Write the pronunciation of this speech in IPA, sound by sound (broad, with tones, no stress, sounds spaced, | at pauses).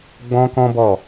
ɡ͡b ɔ̃˦ k ɔ̃˦ b ɔ˦˨